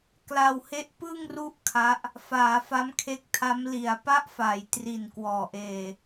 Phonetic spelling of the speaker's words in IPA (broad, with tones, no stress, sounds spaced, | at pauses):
k l a˧ w h e˦˥ ʔ p ɯ˥˩ ŋ r u˥˩ ʔ kʰ a˦˥ ʔ | f aː˩˦ f a˦˥ m kʰ e˦˥ k̚ tʰ a˦˥ m l i˩˦ a̯ p a˦˥ ʔ f a˩˦ j t r i˨˩ n k w ɔː˨˩ ʔ eː˧